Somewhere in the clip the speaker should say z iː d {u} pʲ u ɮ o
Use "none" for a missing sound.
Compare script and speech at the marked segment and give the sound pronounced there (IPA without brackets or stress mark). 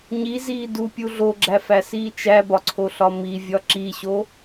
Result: u